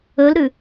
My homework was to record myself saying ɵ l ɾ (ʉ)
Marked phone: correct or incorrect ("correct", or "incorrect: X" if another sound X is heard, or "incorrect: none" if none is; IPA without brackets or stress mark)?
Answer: correct